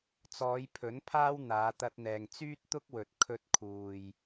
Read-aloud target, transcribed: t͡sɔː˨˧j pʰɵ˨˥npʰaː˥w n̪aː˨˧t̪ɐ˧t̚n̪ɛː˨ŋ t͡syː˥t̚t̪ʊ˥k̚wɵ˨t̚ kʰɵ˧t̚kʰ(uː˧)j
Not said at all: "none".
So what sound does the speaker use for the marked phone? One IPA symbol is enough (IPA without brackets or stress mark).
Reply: uː˨